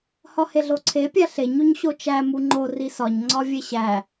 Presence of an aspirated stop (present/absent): present